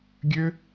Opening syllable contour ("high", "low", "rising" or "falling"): high